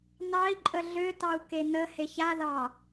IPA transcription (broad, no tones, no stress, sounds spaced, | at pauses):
n ɑ i̯ ǃʼ ə ɮ ø t ɑ u̯ k e n ə h e ç a ð ɑ